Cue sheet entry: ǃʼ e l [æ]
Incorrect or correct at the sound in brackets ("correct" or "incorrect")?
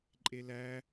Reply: correct